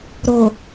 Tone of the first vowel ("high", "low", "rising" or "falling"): low